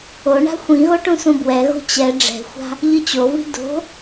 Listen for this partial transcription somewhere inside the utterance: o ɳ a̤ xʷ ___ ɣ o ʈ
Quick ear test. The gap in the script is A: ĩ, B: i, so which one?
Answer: A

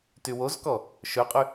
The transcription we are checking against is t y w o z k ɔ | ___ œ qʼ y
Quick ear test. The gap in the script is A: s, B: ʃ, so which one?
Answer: B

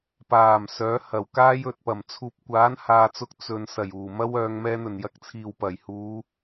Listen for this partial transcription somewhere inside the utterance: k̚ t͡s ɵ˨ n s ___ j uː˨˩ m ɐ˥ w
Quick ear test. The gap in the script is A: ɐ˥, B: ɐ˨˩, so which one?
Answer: B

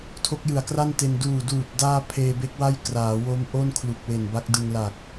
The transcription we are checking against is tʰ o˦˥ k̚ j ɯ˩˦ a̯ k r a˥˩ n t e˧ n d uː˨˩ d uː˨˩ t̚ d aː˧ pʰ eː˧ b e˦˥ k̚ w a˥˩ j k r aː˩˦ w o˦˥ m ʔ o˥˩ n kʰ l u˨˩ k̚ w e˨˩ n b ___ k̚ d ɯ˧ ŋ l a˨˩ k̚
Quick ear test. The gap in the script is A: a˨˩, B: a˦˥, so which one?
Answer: B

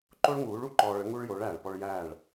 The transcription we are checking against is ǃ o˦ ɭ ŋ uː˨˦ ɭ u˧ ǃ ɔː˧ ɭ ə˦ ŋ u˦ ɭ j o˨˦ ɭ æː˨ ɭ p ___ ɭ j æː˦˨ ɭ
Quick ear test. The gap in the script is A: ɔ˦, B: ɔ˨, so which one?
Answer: A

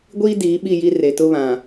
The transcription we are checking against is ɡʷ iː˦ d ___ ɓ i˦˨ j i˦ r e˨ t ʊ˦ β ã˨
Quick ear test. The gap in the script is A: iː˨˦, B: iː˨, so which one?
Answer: A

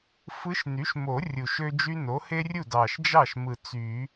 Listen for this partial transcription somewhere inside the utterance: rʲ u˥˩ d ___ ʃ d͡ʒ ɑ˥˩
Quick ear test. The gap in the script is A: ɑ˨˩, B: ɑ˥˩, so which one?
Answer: A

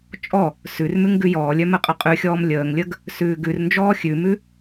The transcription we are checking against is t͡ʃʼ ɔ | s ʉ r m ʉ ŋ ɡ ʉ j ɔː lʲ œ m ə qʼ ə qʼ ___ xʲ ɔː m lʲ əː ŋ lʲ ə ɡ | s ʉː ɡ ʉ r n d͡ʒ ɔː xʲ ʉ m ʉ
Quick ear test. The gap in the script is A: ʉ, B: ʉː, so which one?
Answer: A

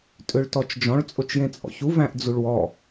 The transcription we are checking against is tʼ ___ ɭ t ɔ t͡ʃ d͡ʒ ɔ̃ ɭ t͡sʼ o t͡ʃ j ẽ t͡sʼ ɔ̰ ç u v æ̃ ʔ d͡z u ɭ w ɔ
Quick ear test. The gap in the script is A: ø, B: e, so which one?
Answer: A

